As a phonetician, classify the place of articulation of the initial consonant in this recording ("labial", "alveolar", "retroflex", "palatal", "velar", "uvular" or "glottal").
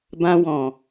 labial